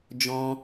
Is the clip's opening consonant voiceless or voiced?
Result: voiced